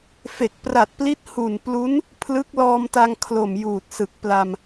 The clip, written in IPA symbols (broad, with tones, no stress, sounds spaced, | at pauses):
f e˨˩ k̚ p r a˨˩ t̚ p l i˦˥ t̚ h u˨˩ n p l u˦˥ n | pʰ l ɯ˦˥ k̚ l ɔː˧ m t a˧ ŋ kʰ l o˨˩ m j uː˨˩ t̚ s ɯ˨˩ k̚ p l a˧ m